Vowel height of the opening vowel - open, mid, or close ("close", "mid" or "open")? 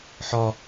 open